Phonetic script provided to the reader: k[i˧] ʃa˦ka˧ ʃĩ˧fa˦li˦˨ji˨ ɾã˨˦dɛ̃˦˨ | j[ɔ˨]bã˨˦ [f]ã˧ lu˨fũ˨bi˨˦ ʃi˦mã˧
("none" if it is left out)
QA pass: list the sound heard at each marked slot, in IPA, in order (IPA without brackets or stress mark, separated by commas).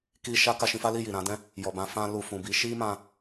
i˦, ɔ˨, f